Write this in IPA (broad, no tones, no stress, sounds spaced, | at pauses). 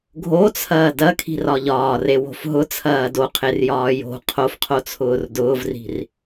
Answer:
ɡʱ o t͡sʰ ɐː d ɐ kʰ i̤ r ɒ ʎ ɒː r e w o̤ f ɦ ʊ t͡sʰ ɐː d o qʰ e r j ɒː j o̤ qʰ o f qʰ o t͡sʰ ʊː r d ʊː v r i̤ r